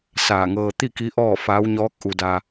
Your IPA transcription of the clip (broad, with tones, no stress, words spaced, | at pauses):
saː˧˩ŋɤː˧ t̪i˥˨ki˧˥ ʔɔː˥˨faː˧˥w ɲɔː˧˥k̚ ʔu˧da˧